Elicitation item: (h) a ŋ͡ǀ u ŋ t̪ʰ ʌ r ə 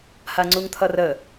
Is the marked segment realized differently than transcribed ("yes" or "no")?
no